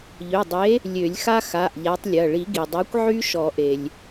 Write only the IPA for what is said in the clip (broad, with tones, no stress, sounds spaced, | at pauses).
ʎ ø˩˧˩ dˤ e˨˥ | lʲ ø˨˩˦ lʲ x a˦ x a˩˧˩ ʔ ʎ a˨˥ tˤ lʲ ɐ˩˧˩ ɭ i˨˩˦ ɡ i˩ dˤ a˨˥ kʷ ʕ y˦ ʃ ɔ˨˩˦ ʔ e˩ lʲ